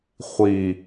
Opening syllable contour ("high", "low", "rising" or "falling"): low